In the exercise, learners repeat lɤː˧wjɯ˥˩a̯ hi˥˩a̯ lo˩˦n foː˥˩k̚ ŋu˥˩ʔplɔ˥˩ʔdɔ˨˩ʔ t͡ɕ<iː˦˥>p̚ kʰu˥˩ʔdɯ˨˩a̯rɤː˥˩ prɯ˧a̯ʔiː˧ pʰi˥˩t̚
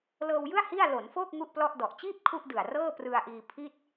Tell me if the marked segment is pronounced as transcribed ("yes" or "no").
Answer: no